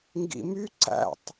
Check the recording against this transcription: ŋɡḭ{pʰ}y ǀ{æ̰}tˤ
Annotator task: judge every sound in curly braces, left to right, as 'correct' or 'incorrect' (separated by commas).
incorrect, correct